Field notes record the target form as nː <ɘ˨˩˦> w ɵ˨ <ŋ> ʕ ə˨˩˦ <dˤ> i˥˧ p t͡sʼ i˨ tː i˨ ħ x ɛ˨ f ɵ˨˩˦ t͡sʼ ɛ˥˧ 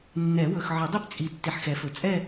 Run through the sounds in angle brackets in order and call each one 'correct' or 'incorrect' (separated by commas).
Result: incorrect, incorrect, correct